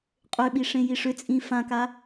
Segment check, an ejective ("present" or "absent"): present